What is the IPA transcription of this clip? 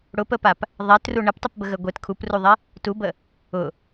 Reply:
ɽ ʊ p ə p a p | ðˤ ɛ t r u ɳ ə p tˤ ə p b ə ɣ ə ɡʷ e t kʰ u p r u ðˤ e | t u b ə | ʊ

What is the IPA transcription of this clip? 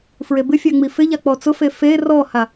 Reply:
f ɹ e b ɪ fʲ a ŋ͡m i f ɪ ʎ a k͡p ɔ t͡s ʊ f e f e r ɔ h a

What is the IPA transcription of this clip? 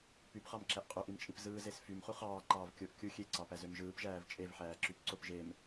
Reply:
p y p χ ɑ m ǁ æ ʔ qʼ ø ʔ i m t͡ʃʼ i p z ɯː z e s f y m χ u χ ɑː ǃ ɑː v kʲ o ʔ kʲ u xʲ e ǀ ɑ p æ z ø m ʒ ɯː p ʒ æː v t͡ʃʼ e v ħ æː ǁ y p ǀ o p ʒ e m

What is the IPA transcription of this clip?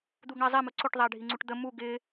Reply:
d̪ u ɡ ɳ æ zˤ ɛ m ʊ ǀ ʊ ʈ ðˤ æ ɖʱ i ŋ͡ǀ u ʈ d̪ ə m u ɡ ɪ

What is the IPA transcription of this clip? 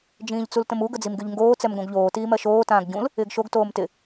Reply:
d͡ʒ ĩː ʎ t͡s u l t ə̃ m u ɡ ə d͡z i m ɡ y ʎ ŋ ɡ oː t͡s ɛ m ɡ õ ɡ ʎ oː t iː m ɜ ʃ oː t ãː ɡ ɟ ũ l | ɪː ɡ ʃ o ɡ t oː m t ɪ

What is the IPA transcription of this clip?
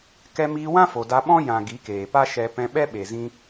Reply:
k ɛ˧ m iː˧ w ã˦ f o˨ d a˧ ɓ ɔ̃˦ j ã˨ ɡ i˨˦ k eː˨ p a˦ ʃ ɛ˧ p ɛ̃˧ ɓ ɛ˦ ɓ e˨ z ĩ˧

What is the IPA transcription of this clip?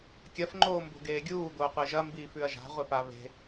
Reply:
kʲ ɐ f ŋ͡ǃ oː m b o̤ ɡ eː ɡʲ uː d̪ oː qʷ e ʒ ɐ m b iː f ʉ ɐ̯ ʒ a̤ ʁʷ e p a β e̤

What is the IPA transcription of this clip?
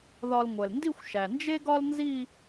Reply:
ð ɒ˧ l ŋʷ ɛ˩ l n d i˥˧ xʷ ʃ æ˩ n d͡ʒ e˥ ɡ ɒ˥ l n z i˥˧

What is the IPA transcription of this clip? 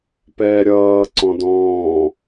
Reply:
p ɛː ɾʲ ʌː ǀ ɔ̃ d ɔ̃ː

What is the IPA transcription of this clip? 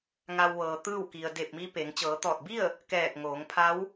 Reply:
ŋ a˧ w ʋ ɤː˩ t̪ ɯː˥˨ w k i˩ ə̯ d e˧˩ p̚ m i˧ p e˩˧ ŋ t͡ɕ ɤː˩˧ t̪ ɔː˧˩ t̚ b i˥˨ ə̯ | k ɛː˧˩ k̚ ŋ oː˩˧ ŋ pʰ a˧˥ w

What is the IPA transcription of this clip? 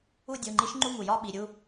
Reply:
u˥˧ dʲ u˩˧˩ ŋ͡ǃ i˧˥ ʃ ŋ͡ǃ u˥˧ ŋ u˩ j ɒ˥˧ ɓ i˩˧˩ ɾʲ u˥˧

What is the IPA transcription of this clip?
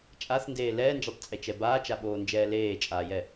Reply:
t͡ʃʼ a θ n d eː l ɛː n d͡ʒ ɛ tˤ t͡sʼ e t͡ʃ ɛ b aː t͡ʃ a ɓ oː n d͡ʒ ɛː l eː t͡ʃʼ aː j ɛ

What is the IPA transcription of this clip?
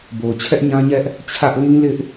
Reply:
b o˨ ʊ̯ t͡ɕʰ ɛ˦ ʔ ɲ ã˦ ɲ ɛ˦ ʔ | t͡ɕʰ ä˦ ʔ l ĩ˦ l ɪ˦ ʔ

